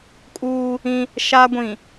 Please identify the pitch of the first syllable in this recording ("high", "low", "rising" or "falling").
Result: high